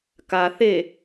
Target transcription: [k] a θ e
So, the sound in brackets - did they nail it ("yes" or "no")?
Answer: yes